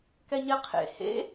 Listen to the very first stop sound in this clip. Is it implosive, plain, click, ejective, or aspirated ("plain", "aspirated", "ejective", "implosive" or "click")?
plain